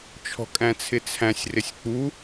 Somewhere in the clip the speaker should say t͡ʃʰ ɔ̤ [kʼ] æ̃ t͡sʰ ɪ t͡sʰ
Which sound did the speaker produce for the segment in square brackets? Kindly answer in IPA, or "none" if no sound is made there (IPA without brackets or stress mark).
kʼ